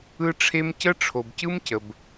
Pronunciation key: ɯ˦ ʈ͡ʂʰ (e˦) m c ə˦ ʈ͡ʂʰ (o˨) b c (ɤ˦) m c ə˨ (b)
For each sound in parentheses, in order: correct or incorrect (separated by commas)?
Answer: correct, correct, incorrect, correct